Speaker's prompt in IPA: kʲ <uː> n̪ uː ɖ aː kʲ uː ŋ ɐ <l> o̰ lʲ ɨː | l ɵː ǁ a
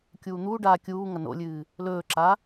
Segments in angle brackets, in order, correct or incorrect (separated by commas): correct, incorrect